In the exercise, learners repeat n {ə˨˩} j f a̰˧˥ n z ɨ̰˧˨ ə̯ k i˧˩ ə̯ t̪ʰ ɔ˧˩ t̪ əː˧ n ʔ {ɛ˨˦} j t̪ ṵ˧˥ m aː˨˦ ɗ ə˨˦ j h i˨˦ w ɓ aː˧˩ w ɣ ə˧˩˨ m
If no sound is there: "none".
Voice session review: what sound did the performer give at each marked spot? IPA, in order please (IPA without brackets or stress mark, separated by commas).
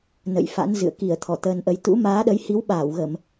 ə̰˧˨, ə˨˦